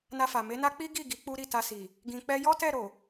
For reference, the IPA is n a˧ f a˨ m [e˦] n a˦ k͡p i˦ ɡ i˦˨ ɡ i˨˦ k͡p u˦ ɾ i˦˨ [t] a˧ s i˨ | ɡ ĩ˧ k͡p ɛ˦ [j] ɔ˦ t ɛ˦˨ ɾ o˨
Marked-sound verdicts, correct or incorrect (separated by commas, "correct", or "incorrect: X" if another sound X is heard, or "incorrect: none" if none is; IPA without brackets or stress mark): incorrect: e˨˦, correct, correct